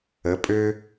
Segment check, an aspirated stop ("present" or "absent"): absent